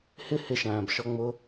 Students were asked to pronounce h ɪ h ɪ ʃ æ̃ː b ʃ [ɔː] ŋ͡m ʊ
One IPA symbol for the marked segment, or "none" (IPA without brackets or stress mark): ɔ